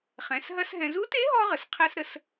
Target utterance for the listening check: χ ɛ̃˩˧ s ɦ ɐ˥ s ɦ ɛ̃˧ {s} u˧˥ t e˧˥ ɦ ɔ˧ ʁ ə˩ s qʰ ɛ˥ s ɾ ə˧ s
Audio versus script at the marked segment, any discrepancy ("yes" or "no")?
yes